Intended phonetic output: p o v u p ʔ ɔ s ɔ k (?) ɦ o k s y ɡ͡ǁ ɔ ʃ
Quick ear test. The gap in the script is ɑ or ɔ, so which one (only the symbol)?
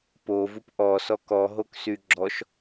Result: ɔ